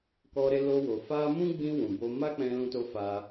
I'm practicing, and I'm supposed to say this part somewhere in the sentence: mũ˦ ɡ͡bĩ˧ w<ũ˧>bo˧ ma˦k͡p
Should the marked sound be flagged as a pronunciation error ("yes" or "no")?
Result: yes